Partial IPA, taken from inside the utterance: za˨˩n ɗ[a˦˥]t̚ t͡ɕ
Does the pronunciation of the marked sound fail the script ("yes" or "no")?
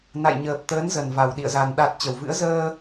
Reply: yes